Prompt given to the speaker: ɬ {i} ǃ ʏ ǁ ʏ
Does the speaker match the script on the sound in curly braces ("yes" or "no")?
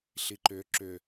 yes